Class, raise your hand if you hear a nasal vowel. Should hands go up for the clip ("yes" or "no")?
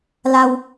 no